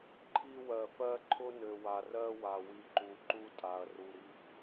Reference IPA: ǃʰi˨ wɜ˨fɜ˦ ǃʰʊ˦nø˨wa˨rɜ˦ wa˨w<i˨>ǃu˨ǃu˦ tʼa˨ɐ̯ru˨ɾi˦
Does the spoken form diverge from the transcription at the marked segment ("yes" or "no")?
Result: no